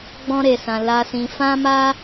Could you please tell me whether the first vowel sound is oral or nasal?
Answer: nasal